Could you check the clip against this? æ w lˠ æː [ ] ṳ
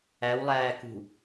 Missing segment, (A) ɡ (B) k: B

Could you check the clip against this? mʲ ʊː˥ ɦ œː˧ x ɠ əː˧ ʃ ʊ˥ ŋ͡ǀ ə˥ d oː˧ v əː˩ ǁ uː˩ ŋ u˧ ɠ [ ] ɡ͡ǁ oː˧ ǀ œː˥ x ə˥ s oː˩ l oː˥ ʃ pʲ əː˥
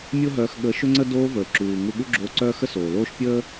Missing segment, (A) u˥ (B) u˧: A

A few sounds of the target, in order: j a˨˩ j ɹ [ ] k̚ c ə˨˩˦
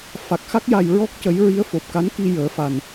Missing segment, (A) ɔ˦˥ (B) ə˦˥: A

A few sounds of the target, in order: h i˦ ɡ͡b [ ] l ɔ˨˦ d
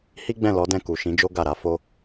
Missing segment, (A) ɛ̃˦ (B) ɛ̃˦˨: B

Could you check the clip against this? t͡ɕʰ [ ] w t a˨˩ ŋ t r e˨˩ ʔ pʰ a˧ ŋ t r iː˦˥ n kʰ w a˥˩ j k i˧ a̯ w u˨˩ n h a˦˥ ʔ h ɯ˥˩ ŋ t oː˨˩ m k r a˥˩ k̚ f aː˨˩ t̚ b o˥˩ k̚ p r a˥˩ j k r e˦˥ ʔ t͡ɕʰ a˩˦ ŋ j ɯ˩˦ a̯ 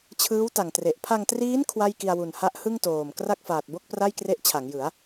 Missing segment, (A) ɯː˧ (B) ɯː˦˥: B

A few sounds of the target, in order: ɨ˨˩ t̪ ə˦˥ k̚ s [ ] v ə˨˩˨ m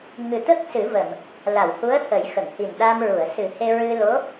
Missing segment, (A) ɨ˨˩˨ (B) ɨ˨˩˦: B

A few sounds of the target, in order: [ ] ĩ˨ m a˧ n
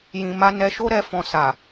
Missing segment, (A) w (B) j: B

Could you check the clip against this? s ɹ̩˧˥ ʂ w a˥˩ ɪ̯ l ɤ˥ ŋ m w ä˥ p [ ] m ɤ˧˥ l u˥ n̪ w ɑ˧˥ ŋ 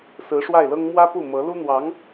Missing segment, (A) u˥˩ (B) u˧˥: A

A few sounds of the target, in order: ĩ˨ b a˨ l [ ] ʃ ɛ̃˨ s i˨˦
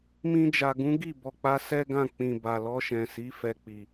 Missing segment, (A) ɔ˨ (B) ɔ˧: B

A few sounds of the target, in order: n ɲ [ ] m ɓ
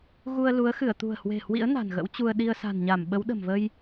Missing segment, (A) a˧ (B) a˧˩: B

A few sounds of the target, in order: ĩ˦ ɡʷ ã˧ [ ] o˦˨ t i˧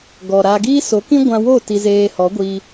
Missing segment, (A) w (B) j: A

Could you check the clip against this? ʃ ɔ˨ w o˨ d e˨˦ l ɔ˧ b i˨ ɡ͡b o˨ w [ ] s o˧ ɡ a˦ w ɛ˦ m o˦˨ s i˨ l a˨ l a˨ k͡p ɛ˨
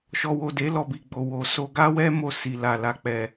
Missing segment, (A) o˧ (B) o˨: B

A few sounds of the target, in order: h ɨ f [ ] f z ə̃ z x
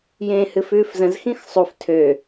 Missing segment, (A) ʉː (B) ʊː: A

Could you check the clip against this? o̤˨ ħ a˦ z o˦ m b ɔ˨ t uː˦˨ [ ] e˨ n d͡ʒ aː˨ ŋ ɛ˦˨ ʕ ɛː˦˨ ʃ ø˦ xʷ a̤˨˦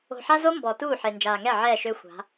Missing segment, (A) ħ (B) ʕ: A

